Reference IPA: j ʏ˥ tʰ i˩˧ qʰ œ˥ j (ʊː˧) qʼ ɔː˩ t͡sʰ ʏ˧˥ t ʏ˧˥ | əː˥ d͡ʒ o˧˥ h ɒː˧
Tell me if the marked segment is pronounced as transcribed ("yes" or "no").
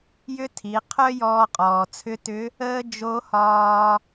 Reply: no